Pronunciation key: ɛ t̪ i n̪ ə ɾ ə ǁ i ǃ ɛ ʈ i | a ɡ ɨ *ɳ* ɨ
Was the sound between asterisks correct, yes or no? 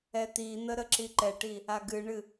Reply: yes